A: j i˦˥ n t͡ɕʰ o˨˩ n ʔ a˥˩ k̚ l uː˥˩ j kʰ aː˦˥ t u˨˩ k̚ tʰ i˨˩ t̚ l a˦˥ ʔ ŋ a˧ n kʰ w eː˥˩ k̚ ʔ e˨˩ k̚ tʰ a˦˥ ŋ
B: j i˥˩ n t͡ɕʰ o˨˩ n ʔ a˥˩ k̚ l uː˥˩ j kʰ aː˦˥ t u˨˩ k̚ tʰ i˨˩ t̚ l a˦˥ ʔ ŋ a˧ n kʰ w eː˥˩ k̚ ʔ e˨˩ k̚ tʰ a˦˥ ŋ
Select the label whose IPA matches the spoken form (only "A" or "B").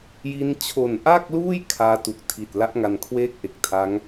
A